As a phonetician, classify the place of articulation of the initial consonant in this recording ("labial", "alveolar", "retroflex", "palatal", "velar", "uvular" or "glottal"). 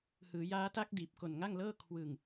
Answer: glottal